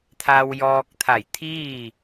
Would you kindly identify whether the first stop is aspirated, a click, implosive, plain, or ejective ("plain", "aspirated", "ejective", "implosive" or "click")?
aspirated